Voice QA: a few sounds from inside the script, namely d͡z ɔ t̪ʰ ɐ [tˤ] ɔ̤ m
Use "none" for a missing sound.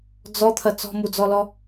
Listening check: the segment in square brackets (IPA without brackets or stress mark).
t͡s